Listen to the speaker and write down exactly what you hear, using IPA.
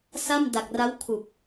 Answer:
s a˥˩ m d a˨˩ k̚ r a˦˥ w kʰ u˨˩ k̚

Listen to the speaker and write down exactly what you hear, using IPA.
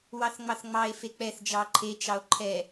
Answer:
w ɑ θ ŋ͡m ɑ θ ŋ͡m ɑ e̯ f e k͡p ɛ θ d͡ʒ ɑ ǃʰ e t͡ʃ ɑ o̯ ǃʰ ɛ

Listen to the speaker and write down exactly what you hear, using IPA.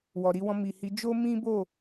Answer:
w ɔ˨ ɾ i˧ w ɔ̃˧ m i˨ h i˨˦ d͡ʒ o˦ m ĩ˦ b o˦˨

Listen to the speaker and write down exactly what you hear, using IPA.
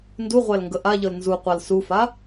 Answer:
n d u ʁʷ æ l ŋ ɡ ə ʔ a ʎ ɤ l n z u qʷ a l s u f a

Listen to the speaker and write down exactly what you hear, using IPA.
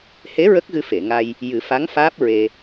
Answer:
h e˧˥ ɹ ə˦˥ k̚ ɣ ɨ˧ f e˨˩˨ ŋ a˧ j | j ɨ˨˩˦ f a˧˥ ŋ f aː˦˥ p̚ ɹ e˧

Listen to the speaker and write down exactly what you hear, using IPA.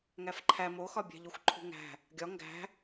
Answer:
ŋ æ f ǃʰ æ m o x ɒ bʲ æ̤ ʎ o xʷ ǃʰ ṳ ŋ æ̤ | ɡʲ ɒ ŋ ɡ æ̤

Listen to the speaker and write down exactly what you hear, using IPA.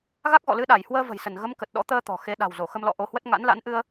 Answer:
ɣ a˦˥ k̚ ɣ ɔ̰˧˨ l ɨ˧ ɗ a˧˩ j h w əː˧ v ə̤˨˩ j s ə˧˩ n ɣ ə˨˦ m k ə˨˩ t̚ ɗ ɔ̰˧˥ t̪ əː˧ t̪ ɔ̤˨˩ x e˨˦ ɗ a̤˨˩ w z o˧˩ x ə˧ m l ɔ̰˧˨ ʔ o˧ h w ə˦˥ t̚ ŋ a̰˧˥ n l a̰˧˥ n ʔ ɨ˧ ə̯

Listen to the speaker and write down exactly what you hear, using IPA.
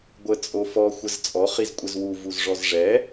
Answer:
ɡʷ ə t͡sʼ o f ɔ xʷ ə z t͡sʼ ɔ χ i z kʷʼ ɘ z w u v u z ʐ ɔ z ʐ ɛ

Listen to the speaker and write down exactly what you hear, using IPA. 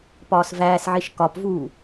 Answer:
p ɒː s v æː s ʕ i ʃ k ɒ p v uː

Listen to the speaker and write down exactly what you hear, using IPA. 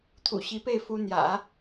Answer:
t̪ʰ ṵ˨˩ ɕ i˧˥ p e˥˩ ɪ̯ f u˥ n̪ j ä̰˨˩˦

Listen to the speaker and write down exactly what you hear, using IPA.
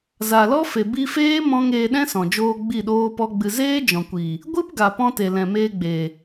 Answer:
z a˨ l ɔ˦ f e˨ b i˧ f eː˦ m ɔ̃˧ ŋ eː˧ ɗ ɛ̃˦ s ɔ̃˨ d͡ʒ oː˧ ɡ͡b i˦˨ ɗ oː˦ p ɔ˦ ɡ͡b ɨ˧ z eː˦ d͡ʒ ɔ̃˨ kʷ i˨ | ɡʷ ɨ˦ p ɡ a˨ p ɔ̃˧ t e˨ l ɛ̃˨ m eː˧ ɡ͡b e˨

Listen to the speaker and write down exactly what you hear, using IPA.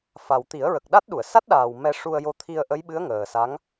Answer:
f a˨˩ w t̪ i˨˩˦ ə̯ ɹ ə˨˩ k̚ ɗ a˦˥ t̚ ɗ u˨˩˨ ə̯ s a˦˥ t̚ ɗ aː˨˩ w m ɛ˧ ʂ u˧ ə̯ j o˧ t̪ʰ i˧ ə̯ ʔ ə˧˥ j ɓ ɨ˧˥ ə̯ ŋ əː˨˩ s a˧˥ ŋ

